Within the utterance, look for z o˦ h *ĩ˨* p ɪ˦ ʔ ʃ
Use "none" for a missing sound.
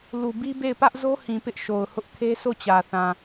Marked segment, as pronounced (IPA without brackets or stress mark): ĩ˨